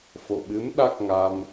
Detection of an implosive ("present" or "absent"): present